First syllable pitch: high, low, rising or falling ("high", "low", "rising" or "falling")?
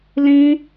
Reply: high